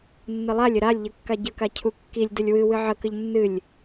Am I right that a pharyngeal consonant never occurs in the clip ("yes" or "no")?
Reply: no